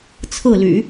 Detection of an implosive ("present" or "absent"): absent